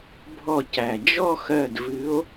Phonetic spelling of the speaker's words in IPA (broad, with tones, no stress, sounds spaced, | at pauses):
bʱ ɔ˧˩ c æ˩ d͡ʒ ɔ˥˧ x ɜ˧˩ d v ɨ˨˦ o̯